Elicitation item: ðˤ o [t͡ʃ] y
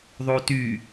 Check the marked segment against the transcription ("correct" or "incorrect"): incorrect